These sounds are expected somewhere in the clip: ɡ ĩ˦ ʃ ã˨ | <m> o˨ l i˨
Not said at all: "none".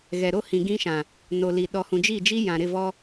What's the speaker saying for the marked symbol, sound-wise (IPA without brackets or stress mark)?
n